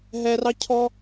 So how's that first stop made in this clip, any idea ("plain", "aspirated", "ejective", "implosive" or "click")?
aspirated